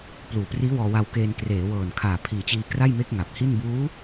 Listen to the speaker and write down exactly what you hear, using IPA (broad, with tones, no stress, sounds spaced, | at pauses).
p l uː˨˩ p r iː˦˥ w ɔː˧ w a˧ w k eː˧ n k r eː˩˦ w ɤː˨˩ n kʰ aː˨˩ pʰ iː˨˩ t͡ɕ iː˧ k r a˥˩ j m e˦˥ k̚ ŋ a˨˩ p̚ h i˥˩ n b uː˦˥